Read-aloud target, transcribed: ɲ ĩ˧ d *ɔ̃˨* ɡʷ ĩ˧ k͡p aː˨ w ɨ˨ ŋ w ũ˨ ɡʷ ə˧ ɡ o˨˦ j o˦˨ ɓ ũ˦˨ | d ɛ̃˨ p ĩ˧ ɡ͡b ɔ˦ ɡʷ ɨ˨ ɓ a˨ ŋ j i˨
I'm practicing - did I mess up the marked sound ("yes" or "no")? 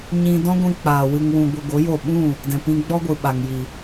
yes